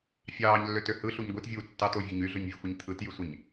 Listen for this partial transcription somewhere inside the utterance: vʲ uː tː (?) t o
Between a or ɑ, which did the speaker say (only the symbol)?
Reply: ɑ